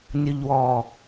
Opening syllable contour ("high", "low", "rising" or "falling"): low